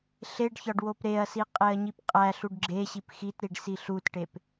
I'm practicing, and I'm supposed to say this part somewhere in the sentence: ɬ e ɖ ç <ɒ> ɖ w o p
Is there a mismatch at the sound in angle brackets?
no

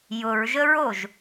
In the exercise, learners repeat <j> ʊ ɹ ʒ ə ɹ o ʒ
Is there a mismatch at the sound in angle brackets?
no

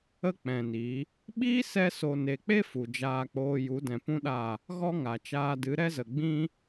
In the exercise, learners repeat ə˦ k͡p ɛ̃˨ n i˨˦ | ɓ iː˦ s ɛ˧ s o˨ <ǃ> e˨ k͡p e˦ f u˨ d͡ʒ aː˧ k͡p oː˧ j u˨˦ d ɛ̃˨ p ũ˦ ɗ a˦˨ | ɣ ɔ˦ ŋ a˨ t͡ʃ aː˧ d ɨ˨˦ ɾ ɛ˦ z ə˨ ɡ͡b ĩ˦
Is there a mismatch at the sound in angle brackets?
yes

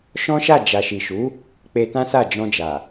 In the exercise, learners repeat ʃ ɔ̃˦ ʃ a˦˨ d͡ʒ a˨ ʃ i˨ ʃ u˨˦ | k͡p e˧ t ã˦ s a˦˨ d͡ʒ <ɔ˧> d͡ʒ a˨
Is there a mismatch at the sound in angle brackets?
yes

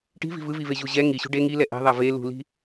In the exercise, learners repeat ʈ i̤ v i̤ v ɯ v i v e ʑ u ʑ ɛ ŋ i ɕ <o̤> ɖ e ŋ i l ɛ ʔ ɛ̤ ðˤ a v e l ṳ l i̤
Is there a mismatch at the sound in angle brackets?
yes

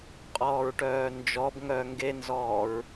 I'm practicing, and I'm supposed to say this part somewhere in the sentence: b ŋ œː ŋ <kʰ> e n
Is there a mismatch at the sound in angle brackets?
yes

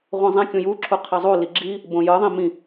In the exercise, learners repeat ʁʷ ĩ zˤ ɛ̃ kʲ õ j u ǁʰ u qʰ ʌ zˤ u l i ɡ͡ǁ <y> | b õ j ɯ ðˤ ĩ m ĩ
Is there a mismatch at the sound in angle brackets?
yes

